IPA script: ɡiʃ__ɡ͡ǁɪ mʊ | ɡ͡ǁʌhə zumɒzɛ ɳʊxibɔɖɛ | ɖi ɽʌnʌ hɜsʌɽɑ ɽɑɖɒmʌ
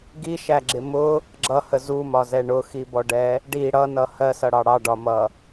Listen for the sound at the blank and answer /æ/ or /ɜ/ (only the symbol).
æ